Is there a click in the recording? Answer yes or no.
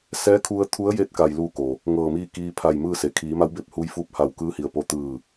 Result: no